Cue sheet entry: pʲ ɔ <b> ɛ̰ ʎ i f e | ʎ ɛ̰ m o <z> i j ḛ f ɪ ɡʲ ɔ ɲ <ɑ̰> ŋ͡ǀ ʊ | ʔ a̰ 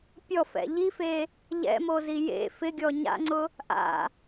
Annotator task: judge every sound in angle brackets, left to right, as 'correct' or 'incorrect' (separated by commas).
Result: incorrect, correct, incorrect